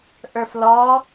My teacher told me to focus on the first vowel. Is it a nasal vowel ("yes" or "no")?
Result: no